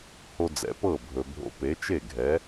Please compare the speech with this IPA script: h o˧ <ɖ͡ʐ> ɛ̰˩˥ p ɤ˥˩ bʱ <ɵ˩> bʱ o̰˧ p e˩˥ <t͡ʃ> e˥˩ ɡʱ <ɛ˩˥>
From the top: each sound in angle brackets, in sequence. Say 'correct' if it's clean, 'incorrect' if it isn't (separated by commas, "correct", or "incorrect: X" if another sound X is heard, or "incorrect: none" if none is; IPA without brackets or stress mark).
incorrect: d͡z, correct, correct, correct